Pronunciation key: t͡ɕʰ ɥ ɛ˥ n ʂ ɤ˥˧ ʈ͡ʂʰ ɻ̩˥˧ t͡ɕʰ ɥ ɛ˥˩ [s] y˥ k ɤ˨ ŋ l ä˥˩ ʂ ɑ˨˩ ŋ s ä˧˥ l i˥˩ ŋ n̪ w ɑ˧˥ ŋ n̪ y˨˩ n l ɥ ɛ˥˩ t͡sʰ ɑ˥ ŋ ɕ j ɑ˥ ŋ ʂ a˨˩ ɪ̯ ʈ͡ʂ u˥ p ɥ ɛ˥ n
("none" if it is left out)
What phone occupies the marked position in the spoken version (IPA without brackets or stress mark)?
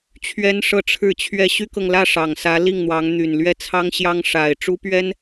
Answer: ɕ